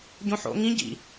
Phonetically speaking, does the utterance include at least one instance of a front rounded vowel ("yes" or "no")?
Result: no